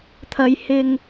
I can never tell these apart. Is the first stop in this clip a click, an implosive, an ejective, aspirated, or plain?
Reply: aspirated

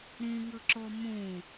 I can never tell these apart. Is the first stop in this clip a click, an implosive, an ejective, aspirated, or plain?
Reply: click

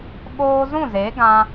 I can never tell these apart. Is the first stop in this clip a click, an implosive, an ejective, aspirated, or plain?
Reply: implosive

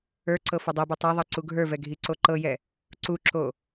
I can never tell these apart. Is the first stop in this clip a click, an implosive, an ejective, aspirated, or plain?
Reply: click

